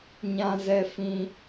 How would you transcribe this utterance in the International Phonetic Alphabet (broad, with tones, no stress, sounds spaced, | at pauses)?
ɲ ã˧ z ɛ˧ f ĩ˧